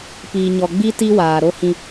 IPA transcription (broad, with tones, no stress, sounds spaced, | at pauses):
p iː˨ ɲ ɔ˨ ɡ͡b i˦ t i˦ w aː˨ ɾ o˦ h ĩ˦